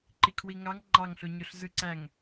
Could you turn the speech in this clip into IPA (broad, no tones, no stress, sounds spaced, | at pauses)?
ǃ i kʰ w i ŋ ɑ ŋ ŋ͡ǃ ɑ ŋ ɬ o ɲ o ɬ z ɯ ǀ æ ŋ